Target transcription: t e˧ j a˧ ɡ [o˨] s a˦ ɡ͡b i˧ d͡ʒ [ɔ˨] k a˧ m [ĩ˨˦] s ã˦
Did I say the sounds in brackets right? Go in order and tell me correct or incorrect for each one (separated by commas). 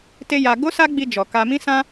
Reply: incorrect, correct, incorrect